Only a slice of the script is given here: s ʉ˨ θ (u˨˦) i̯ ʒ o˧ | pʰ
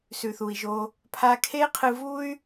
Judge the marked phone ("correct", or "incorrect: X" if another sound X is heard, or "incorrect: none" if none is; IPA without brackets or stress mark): incorrect: u˨